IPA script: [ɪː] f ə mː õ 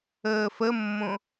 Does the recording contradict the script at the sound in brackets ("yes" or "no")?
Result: yes